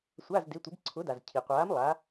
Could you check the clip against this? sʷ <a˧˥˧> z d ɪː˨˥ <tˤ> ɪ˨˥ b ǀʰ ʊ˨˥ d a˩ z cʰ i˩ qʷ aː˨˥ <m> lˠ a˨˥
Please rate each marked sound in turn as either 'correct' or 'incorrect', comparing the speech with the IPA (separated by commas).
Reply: correct, incorrect, correct